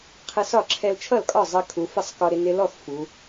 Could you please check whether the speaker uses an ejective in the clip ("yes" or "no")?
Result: yes